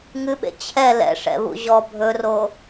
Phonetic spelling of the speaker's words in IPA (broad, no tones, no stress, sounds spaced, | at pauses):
ŋ ɨ ɓ ḛ t͡ɕʰ ɛ l ɛ̰ ʂ ɛ̰ β ṵ ʑ ɔ bʱ ɵ r o